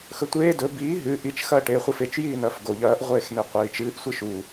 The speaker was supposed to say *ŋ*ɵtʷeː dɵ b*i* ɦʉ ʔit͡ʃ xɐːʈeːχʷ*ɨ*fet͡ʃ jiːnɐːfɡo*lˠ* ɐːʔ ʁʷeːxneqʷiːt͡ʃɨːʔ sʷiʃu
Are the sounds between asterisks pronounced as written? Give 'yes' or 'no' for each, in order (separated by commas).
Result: no, no, yes, no